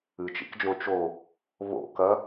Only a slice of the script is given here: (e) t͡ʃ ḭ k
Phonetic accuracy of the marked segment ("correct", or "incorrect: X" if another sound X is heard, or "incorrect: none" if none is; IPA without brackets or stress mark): incorrect: ɨ